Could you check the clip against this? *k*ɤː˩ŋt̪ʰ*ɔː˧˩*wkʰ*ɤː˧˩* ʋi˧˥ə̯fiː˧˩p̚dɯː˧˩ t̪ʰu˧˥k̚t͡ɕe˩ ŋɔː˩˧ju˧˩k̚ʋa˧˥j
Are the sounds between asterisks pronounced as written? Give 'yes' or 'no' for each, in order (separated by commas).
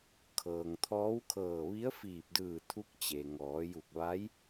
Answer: no, no, yes